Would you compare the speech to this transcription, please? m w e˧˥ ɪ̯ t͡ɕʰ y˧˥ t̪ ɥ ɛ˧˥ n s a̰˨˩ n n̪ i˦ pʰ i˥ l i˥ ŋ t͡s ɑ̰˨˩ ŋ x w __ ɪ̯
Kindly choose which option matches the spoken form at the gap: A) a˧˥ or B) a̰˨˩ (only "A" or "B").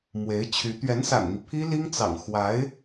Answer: A